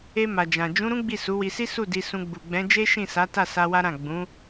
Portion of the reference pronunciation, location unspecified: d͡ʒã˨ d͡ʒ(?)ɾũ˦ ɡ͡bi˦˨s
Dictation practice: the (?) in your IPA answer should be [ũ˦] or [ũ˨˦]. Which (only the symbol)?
ũ˨˦